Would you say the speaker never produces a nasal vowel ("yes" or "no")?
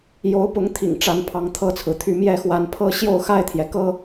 yes